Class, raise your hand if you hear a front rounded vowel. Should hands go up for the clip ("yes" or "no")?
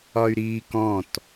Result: yes